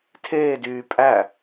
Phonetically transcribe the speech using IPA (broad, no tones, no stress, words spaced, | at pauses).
tʰeːdyː pʼæ